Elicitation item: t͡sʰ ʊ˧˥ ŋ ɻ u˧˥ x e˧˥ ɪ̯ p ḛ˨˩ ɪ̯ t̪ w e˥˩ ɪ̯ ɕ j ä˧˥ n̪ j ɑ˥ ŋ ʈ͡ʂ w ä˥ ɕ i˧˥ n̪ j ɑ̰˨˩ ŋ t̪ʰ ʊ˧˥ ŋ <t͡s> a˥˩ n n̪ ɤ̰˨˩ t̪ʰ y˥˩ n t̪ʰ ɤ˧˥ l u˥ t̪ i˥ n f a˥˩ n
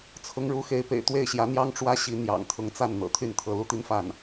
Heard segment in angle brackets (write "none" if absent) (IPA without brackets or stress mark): t͡s